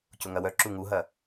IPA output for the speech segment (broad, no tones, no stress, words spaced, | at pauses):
cʊŋɐwœ ǁuŋuɦɐ